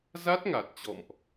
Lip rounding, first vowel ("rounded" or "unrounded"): unrounded